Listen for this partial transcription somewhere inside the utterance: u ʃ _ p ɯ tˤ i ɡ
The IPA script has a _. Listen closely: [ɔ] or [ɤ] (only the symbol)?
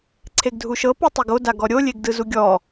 ɤ